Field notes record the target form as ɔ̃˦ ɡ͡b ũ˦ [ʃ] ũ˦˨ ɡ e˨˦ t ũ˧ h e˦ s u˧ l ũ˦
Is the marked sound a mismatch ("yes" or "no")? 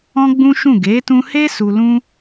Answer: no